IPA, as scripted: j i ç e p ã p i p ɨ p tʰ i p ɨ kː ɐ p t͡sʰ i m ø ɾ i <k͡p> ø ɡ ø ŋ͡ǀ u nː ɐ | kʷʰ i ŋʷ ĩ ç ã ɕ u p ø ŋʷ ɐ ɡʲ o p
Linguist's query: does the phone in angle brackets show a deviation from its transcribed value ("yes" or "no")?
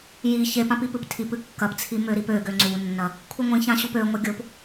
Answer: yes